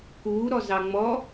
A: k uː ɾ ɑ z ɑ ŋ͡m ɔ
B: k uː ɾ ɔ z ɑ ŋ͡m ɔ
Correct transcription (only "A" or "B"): B